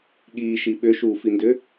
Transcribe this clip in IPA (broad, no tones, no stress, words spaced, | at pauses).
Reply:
ɠiːʃi ɓʏʃuːfindʏ